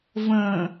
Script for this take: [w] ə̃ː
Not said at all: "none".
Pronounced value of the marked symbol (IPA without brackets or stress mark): v